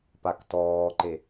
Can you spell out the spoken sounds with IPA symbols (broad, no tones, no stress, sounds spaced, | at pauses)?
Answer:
p a k t ɔː ǃ e